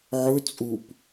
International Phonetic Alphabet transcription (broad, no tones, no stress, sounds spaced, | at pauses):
ʕ ɵ t͡sʼ u p